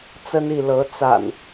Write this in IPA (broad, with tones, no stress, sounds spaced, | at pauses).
t͡s ə˦ n i˥˨ l ɤ˨˦ t͡s a̰˨˩ n